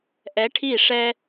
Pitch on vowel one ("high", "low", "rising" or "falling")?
rising